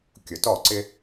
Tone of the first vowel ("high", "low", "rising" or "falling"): low